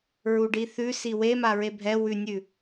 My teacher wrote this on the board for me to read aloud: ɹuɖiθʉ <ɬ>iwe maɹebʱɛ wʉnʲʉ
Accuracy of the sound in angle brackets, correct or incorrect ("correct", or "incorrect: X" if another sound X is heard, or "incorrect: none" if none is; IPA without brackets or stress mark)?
incorrect: s